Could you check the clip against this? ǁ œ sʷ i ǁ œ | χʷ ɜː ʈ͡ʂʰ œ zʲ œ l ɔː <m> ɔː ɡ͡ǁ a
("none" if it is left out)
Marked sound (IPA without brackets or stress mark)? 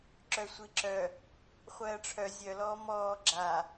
m